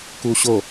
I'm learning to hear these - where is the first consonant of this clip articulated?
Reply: velum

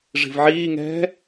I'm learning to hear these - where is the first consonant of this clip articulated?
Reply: retroflex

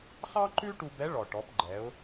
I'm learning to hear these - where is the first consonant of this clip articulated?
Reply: uvula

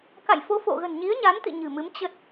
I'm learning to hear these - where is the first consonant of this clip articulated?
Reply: velum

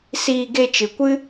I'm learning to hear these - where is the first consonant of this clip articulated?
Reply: tongue tip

